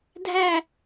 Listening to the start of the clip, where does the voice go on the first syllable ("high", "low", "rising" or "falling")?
falling